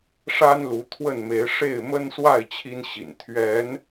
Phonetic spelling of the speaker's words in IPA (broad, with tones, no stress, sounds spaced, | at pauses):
ʂ a˦ n l u˨˦ t̪ʰ w ə˥˨ n m e˨˦ ɪ̯ ʂ e˥˨ ɪ̯ m ə˦ n s w a˥˨ ɪ̯ t͡ɕʰ i˦ n ɕ ḭ˨˩ n t̪ʰ ɥ ɛ˨˦ n